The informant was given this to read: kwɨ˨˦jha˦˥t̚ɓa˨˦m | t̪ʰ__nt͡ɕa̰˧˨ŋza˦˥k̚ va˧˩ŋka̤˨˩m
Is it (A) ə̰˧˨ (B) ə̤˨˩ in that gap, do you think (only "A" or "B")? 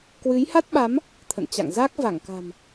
A